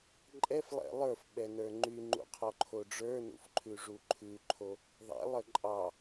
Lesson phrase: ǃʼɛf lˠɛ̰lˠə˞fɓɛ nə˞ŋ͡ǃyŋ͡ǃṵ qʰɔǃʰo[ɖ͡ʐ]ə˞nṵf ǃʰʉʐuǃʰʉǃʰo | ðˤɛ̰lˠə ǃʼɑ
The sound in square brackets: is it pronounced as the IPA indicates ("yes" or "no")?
yes